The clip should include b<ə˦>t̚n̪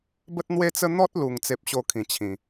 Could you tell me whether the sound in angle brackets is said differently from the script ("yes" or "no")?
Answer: no